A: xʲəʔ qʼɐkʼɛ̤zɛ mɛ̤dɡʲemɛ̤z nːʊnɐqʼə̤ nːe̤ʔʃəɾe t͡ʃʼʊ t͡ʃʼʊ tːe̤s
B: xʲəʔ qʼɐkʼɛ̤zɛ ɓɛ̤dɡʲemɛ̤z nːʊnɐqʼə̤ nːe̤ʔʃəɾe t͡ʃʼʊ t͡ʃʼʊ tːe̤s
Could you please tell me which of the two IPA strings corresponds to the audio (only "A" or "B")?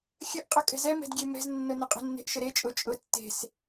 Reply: A